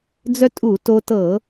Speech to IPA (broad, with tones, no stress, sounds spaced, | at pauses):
d͡z œ˧ tʼ u˧˩˧ t o˧ t ɤ˧˩˧